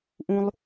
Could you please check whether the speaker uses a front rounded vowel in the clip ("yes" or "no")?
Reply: no